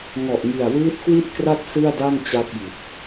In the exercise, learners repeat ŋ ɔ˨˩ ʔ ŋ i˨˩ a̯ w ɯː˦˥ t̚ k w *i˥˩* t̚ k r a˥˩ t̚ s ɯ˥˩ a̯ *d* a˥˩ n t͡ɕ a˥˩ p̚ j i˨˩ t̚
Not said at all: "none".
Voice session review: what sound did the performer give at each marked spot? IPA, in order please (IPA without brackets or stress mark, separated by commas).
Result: i˥˩, d